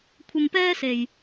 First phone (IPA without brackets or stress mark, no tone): kʷʰ